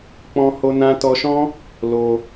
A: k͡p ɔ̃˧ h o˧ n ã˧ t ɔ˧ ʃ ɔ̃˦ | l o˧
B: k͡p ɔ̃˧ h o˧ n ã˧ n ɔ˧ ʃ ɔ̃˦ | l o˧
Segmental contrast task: A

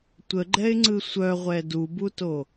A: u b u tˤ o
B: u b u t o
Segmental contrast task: B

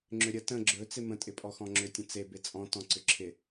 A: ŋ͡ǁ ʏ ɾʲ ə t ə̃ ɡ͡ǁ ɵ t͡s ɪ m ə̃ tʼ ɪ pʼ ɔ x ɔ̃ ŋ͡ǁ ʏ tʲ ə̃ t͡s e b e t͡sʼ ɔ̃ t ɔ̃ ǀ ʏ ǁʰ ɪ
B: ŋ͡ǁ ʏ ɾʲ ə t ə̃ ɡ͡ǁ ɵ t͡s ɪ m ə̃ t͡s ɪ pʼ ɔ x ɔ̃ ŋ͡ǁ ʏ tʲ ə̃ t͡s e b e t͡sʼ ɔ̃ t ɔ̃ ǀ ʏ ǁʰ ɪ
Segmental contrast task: A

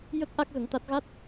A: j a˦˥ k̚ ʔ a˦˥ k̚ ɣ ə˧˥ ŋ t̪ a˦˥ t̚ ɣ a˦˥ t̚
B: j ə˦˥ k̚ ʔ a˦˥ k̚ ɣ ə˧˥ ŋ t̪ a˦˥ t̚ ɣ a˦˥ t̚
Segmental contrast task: B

